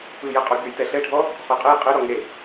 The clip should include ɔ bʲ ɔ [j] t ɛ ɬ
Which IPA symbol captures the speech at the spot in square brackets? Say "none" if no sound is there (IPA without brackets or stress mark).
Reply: j